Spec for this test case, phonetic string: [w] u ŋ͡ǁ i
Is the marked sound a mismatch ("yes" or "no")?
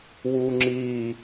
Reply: no